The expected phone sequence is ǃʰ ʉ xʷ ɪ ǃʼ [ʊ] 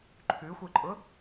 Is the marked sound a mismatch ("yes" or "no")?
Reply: no